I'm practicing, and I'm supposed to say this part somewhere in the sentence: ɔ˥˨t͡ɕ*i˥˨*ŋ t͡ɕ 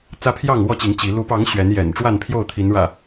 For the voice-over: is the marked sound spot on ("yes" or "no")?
no